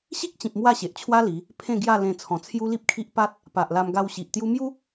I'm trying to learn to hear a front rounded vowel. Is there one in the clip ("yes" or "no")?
no